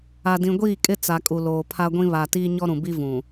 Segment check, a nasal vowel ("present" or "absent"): present